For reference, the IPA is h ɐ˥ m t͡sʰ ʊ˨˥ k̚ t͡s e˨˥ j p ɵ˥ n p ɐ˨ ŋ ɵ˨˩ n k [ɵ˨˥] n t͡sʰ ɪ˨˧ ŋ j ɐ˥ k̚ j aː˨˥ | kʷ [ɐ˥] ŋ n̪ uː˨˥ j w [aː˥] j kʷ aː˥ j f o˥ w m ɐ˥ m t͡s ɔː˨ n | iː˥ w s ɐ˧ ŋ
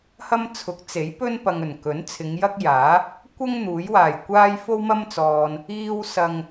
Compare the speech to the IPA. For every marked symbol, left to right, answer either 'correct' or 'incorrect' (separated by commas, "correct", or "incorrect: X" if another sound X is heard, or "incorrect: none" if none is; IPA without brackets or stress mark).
correct, correct, incorrect: aː˨˩